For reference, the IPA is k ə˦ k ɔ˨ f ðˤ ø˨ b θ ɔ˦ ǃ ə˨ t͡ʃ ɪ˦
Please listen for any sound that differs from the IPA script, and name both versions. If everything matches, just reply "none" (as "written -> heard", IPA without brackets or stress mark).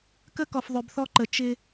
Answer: none